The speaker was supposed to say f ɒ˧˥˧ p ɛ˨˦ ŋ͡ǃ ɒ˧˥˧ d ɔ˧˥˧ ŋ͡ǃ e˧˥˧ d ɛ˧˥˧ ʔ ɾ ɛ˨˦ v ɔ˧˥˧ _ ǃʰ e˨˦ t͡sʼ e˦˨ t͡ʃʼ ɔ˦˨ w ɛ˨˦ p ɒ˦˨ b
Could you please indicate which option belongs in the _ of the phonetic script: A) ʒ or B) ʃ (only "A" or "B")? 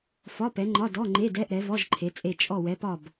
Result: A